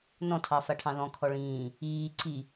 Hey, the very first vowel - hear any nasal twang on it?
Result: yes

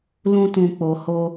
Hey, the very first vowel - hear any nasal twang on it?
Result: yes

